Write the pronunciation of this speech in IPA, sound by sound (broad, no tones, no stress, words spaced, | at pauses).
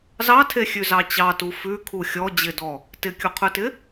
zɑtʰe xʲʉzɑt͡ɕɑtu fʉ kʰuxʲɔ d͡ʑɪdɔ | tɪkʲuqʰʉtɪ